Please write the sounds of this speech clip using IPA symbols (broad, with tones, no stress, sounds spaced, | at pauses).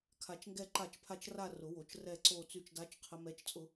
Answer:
kʰ a˧˩ t͡ʃ ŋ ɡ ɛ˥˧ ǃ a˥˩ t͡ʃ pʰ a˥˧ t͡ʃ r a˥˧ r ʊ˨˩˦ w o˨˩˦ t͡ʃ r ɛ˥˧ ǀ o˥˧ t͡s y˥˩ t͡ʃ d a˦˥ t͡ʃ qʰ ə˦˥ m ɛ˦˥ t͡ʃ t͡sʼ ʊ˦˥